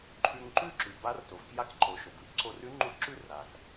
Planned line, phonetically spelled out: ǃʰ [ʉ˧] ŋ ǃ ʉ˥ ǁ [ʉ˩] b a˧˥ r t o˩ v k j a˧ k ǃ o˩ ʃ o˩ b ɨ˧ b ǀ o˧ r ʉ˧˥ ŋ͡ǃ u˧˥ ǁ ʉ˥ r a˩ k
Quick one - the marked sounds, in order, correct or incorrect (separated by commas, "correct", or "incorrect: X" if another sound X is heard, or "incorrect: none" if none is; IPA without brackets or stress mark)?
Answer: correct, correct